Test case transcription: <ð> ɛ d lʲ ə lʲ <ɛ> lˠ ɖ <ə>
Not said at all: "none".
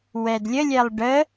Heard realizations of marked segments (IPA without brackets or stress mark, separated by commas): w, ɛ, ə